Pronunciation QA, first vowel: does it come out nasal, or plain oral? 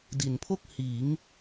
oral